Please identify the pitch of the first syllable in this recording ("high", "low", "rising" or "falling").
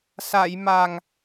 low